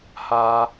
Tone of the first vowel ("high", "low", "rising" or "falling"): high